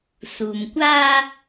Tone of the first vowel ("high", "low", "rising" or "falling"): low